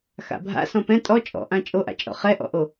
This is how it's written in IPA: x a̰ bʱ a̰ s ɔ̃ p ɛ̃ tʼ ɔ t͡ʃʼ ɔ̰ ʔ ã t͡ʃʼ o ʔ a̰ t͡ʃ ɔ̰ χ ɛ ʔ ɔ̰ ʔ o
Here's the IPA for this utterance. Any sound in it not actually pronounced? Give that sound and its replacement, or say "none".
t͡ʃ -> t͡ʃʼ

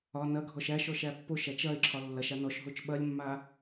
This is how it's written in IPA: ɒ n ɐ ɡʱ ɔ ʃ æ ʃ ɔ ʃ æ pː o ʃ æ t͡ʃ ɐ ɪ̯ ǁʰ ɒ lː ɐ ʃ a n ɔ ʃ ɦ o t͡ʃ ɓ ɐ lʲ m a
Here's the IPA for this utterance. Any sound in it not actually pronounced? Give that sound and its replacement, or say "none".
m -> mː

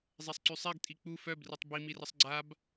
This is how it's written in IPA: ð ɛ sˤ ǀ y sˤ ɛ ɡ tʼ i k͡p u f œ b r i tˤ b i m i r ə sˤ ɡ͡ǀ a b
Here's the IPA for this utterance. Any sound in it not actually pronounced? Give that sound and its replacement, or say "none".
ð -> zˤ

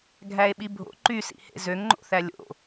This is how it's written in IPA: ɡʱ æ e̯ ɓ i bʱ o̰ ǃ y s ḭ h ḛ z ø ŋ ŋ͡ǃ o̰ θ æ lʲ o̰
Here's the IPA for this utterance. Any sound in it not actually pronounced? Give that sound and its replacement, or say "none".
none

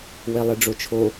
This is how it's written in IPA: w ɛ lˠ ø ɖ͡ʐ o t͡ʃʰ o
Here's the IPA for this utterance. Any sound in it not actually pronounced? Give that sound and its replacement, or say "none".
ø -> e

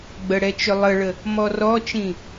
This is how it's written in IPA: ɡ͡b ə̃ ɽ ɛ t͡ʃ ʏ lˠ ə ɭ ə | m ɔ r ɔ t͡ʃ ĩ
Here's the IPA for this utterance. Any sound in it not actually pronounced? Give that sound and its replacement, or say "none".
ə̃ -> ə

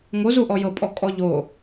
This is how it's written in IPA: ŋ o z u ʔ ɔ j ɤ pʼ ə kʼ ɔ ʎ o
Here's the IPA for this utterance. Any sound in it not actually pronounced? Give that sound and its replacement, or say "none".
ə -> ɔ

